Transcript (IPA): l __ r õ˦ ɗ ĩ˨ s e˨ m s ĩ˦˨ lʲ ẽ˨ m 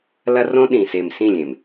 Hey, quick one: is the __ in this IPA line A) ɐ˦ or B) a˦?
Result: A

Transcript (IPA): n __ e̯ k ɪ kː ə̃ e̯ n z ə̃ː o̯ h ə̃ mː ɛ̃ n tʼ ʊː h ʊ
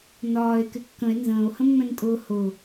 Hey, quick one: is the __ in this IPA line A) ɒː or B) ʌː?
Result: A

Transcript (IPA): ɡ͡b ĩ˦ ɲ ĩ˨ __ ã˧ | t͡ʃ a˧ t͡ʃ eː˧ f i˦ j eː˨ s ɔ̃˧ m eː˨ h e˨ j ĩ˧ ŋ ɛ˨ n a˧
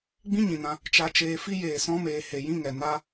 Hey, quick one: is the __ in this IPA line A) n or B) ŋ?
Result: A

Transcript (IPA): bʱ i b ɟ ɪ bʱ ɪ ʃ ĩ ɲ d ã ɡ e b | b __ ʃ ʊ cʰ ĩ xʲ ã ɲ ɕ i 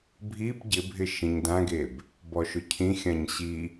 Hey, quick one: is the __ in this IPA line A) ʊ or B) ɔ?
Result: B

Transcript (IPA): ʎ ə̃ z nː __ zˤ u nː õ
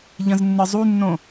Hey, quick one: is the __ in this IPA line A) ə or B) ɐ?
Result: A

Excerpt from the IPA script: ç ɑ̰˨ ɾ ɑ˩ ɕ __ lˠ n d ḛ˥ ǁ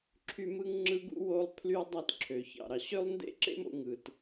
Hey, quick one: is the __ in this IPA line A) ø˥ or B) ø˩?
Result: A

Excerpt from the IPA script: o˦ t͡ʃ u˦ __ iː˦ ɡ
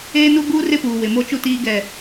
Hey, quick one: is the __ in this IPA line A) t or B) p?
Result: A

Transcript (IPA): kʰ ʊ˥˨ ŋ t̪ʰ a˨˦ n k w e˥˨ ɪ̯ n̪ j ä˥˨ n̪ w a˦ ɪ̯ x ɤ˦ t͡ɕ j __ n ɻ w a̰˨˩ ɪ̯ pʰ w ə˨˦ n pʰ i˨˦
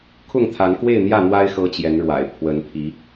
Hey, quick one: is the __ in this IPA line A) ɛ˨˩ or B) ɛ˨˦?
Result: B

